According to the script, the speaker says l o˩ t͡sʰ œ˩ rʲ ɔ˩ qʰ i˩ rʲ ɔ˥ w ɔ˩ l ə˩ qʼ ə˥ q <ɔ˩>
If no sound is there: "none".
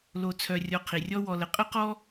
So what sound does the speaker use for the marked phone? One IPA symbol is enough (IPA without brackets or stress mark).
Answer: ɔ˥